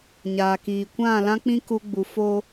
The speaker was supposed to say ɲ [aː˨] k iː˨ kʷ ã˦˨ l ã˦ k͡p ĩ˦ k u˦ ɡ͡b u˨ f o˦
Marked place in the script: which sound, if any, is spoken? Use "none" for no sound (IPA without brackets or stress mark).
aː˨